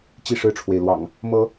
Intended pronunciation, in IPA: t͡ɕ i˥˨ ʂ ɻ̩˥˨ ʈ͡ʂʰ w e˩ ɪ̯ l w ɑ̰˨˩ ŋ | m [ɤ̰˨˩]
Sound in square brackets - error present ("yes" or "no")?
yes